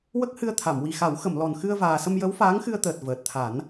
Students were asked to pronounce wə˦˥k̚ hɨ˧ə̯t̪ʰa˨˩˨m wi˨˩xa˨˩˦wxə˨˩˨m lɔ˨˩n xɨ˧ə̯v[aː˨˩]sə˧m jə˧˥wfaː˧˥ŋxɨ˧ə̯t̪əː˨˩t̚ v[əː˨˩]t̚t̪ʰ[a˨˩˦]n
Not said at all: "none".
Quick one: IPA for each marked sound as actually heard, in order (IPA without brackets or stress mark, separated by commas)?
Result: aː˨˩, əː˨˩, a˨˩˦